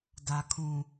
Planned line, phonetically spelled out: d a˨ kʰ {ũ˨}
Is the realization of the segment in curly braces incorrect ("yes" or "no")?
no